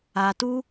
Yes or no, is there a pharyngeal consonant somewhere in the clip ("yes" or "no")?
no